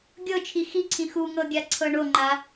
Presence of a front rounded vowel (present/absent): absent